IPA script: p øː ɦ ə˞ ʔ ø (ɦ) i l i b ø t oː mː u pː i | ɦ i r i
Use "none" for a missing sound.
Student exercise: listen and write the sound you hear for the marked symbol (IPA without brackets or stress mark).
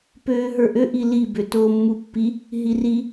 ʔ